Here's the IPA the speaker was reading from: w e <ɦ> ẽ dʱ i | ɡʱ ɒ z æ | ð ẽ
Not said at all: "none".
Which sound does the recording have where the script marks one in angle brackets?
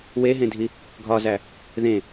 ɦ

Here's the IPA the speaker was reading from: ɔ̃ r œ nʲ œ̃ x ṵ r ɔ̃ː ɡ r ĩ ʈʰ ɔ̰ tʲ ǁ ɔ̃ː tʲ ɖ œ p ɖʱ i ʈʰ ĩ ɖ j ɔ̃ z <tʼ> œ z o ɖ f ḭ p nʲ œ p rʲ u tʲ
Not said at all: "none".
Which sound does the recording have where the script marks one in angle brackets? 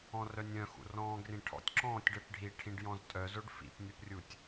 tʼ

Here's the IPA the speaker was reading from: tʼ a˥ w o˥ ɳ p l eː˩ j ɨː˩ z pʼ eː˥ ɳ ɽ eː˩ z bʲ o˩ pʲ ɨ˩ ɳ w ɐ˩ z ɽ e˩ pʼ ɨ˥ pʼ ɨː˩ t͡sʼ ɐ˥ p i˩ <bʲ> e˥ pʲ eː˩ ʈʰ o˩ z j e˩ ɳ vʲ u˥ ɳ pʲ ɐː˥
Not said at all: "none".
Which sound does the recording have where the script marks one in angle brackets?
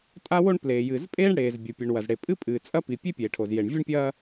pʲ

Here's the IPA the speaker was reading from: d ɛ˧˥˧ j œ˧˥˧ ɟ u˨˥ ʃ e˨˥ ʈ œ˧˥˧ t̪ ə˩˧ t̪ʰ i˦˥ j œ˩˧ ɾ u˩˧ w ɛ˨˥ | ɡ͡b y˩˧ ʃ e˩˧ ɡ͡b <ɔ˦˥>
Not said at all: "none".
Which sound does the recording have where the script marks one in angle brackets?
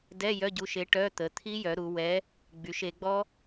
ɔ˦˥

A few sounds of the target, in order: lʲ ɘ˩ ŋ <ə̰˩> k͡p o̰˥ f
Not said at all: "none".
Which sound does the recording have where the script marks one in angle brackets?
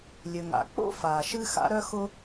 a̰˩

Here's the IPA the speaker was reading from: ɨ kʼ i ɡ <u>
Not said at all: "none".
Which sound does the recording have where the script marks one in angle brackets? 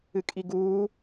uː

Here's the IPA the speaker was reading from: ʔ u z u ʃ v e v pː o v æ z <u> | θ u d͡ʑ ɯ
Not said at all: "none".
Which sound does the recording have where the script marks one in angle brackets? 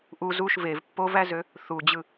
ø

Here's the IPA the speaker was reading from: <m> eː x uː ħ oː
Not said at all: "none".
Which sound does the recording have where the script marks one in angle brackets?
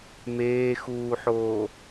m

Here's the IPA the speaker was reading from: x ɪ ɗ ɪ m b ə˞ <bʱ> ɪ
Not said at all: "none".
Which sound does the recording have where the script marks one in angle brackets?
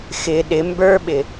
ɓ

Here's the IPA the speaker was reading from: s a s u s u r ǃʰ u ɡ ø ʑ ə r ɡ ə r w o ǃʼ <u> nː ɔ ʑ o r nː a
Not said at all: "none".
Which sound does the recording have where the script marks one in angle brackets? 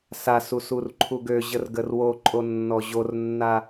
o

